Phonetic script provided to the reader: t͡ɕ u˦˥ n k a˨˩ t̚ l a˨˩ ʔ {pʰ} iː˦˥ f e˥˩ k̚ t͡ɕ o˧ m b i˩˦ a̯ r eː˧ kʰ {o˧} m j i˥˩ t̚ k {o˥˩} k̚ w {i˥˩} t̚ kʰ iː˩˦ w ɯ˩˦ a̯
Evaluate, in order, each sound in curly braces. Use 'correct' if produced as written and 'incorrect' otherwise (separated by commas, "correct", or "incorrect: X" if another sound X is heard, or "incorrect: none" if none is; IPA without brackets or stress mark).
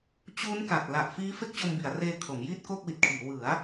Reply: incorrect: f, incorrect: o˩˦, correct, incorrect: i˨˩